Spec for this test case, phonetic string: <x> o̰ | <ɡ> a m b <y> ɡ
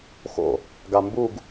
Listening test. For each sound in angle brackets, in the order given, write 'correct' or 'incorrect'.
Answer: correct, correct, incorrect: u

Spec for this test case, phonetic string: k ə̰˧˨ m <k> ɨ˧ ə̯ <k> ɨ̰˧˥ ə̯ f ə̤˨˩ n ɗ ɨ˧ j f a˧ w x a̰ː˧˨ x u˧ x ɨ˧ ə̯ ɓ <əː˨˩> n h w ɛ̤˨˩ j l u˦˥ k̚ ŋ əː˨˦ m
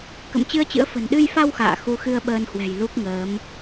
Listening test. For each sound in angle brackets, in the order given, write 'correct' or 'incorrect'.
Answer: incorrect: t͡ɕ, incorrect: t͡ɕ, incorrect: əː˧

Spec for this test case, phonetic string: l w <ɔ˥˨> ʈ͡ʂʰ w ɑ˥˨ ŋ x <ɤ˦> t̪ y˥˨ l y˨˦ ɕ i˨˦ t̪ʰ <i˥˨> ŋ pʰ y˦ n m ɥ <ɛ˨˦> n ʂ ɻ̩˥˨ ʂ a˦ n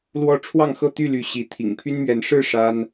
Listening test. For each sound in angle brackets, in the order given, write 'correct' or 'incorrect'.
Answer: correct, incorrect: ɤ˥˨, incorrect: ḭ˨˩, correct

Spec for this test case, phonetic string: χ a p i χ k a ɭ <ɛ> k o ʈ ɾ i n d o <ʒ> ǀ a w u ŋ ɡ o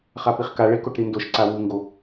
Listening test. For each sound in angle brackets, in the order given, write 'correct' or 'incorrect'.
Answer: incorrect: e, incorrect: ʃ

